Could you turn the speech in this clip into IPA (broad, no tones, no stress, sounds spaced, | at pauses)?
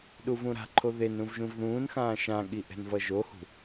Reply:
ɗ u v ũ ɾ a̤ ǃʰ o ð e n ɾ ũ v ʒ ũ v ð ũː n x ãː ʃ ã ɠ i ʔ ɛ̤ n v ʌ ʒ o h ṳ